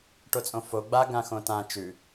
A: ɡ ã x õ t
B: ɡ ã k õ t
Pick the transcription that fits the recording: A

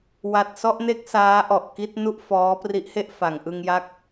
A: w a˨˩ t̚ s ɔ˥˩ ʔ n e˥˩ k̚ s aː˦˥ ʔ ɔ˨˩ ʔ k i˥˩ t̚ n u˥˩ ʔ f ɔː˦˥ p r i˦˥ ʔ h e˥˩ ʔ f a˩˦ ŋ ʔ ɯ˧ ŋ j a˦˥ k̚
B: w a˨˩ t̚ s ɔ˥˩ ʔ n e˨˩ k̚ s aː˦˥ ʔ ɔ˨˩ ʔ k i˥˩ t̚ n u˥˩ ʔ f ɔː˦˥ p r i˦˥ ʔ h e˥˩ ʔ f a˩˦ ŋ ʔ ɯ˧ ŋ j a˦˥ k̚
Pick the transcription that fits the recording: A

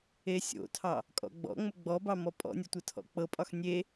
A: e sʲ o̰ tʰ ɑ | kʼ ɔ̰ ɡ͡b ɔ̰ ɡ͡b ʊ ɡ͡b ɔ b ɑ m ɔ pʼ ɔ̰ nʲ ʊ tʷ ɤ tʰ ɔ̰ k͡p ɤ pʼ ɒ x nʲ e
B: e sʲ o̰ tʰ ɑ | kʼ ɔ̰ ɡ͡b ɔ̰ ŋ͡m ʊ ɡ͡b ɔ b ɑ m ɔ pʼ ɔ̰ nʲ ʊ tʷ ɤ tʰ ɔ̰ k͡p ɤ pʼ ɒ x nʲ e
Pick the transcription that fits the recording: B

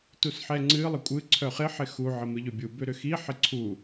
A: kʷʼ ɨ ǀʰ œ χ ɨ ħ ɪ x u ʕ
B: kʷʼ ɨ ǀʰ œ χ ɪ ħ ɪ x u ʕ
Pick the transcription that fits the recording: B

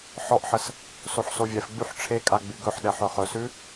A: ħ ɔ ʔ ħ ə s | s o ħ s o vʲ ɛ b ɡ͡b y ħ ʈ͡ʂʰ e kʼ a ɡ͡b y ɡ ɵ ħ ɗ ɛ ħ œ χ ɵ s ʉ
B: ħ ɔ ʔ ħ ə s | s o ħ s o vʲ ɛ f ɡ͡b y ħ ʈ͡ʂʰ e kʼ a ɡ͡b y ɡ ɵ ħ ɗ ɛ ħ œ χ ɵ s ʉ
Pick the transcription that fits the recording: B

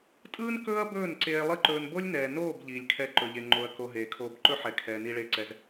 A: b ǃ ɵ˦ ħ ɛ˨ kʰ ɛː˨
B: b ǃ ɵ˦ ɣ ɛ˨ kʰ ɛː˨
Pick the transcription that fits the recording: A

